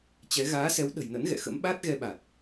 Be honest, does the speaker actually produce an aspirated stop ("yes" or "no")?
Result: no